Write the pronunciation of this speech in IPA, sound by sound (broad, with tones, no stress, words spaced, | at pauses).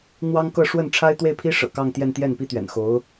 n̪wɑ˥ŋkɤ˥˧ ʂwə˥˩nʈ͡ʂʰa˥ɪ̯ t̪we˥˩ɪ̯pʰi˥ ʂɤ̰˨˩kɑ˥˧ŋt̪jɛ˥˧n t̪jɛ˥˩npi˥t̪ɥɛ̰˨˩nxo˧˥ʊ̯